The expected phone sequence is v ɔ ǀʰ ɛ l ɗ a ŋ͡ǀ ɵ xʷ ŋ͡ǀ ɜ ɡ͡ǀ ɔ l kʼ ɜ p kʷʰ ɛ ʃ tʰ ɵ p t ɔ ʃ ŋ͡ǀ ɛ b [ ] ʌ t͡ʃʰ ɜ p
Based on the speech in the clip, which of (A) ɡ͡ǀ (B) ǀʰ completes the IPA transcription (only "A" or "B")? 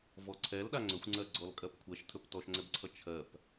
B